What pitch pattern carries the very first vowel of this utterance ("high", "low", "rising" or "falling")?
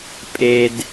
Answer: high